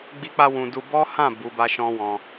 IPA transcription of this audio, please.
ɡ͡b i˦ k͡p a˧ w ũ˨ d u˧ b ɔ˦ h ã˦˨ b u˨˦ b a˦ ʃ ɔ̃˦ w ɔ̃˧

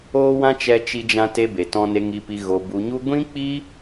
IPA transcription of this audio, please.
oː˦ w ã˦ t͡ʃ ɛ˦ t͡ʃ i˦ d͡ʒ ã˦ t e˧ b e˧ t ɔ̃˦ n e˧ ŋ i˧ p i˧ ɣ o˧ b u˧ ɲ u˦ ɡʷ ĩ˦ k͡p i˦

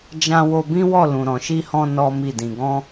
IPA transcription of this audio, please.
d͡ʒ ã˧ w o˧ b ĩ˦ w ɔ˦˨ l ũ˨ ɾ ɔ̃˨ ʃ i˧ h ɔ̃˧ n ɔ˦ m i˦˨ d ĩ˧ ɡ ɔ̃˦

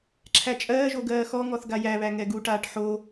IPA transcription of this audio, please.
ǁʰ æ t͡ʃʼ ɜː ʒ o ɡ ɜː x ɔ ŋ ɔ θ ɡ a j æ β æ ŋ ɛ ɡ u ʈ aː ʈ ħ o

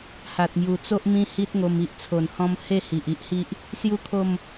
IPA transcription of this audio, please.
h a˨ t̚ m j u˨˩ t͡s o˦ ʔ m ĩ˦ h i˦ t̚ ŋ o˧ m i˦ ʔ t͡sʰ o˨˩ n h ɔ̃˧ m h e˥˧ h i˨ ʔ i˦ ʔ h i˦ ʔ | s j u˥˧ kʰ o˥˧ m

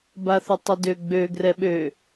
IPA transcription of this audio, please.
b a θ ʊ tˤ ʊ d ø ɡ͡b ø ɡ r ɛ ɓ ø

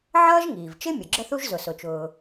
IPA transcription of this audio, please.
ʕ ʌː˥ ʒ ŋ iː˩ v t͡ʃ ɪ˥ mʲ ʊ˩ ɡ͡ǁ ə˥ θ u˥ ʒ z ʊ˩ s ʊ˩ t͡ʃ ʊː˩

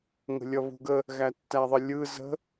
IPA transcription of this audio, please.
ŋ ə̤ lʲ ʌ β ṳ ɡ ə | ɣ æ tː æ ðˤ ə lʲ ɯ z ə̤

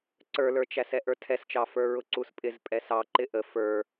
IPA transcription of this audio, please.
ǀ ə˞ l ə˞ t͡ʃ æ s ɛ ʔ ə˞ tʰ ɛ s t͡ʃ ɑ f ə˞ ɹ ʊ ǀ u s pʼ ɪ z pʼ ɛ s ɑ ǃ ɪ ʔ ə f ə˞

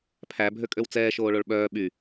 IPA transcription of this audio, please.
pʰ æ bʱ ø kʼ ø w t͡s ɛː ʃ oː ɭ o ɭ ɓ œː ɓ y

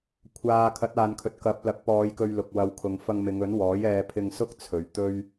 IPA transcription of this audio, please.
kʷʰ aː˨ kʰ ɐ˨˥ t̚ aː˨ n kʰ ɵ˨ t̚ k ɐ˨˥ p̚ l ɐ˨˥ k̚ p ɔː˨˧ j k ɵ˧ ɥ l ʊ˨ k̚ w ɐ˨˧ w kʰ ʊ˨ ŋ f ɐ˧ ŋ m ɪ˨˧ ŋ ɵ˨˥ n w ɔː˨˥ j ɛː˧ pʰ ɪ˧ ŋ s ʊ˥ k̚ t͡sʰ ɵ˨ ɥ t̪ ɵ˥ ɥ

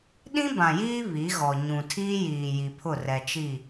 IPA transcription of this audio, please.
ɗ ĩ˦ b ã˨ j iː˦ β i˨˦ ɣ ɔ˨ ɲ ũ˨ tʰ iː˦ j iː˨ j i˨ pʰ ʊ˦˨ r ɛ˨ t͡ʃ i˦˨

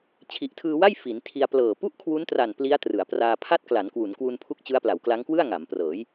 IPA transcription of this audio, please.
t͡ɕʰ i˨˩ ʔ tʰ ɯː˧ w a˥˩ j f i˩˦ n tʰ i˧ a̯ p l ɤː˨˩ p u˥˩ ʔ kʰ w u˦˥ n t r a˨˩ n p l i˦˥ a̯ t r ɯ˩˦ a̯ p r aː˧ pʰ a˥˩ t̚ k l a˩˦ n k w u˩˦ n k w u˧ n pʰ u˦˥ k̚ t͡ɕ ɯ˦˥ a̯ p l a˩˦ w k l a˦˥ ŋ k w ɯ˥˩ a̯ ŋ a˩˦ m p r ɤː˩˦ j

